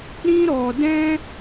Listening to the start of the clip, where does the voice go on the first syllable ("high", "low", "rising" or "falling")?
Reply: high